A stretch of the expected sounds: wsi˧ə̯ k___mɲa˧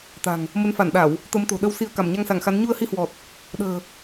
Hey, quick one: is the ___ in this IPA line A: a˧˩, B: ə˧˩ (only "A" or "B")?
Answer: A